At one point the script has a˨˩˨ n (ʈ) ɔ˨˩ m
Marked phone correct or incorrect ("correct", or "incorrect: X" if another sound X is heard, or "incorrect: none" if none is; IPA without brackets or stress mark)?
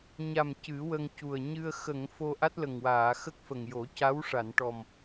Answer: correct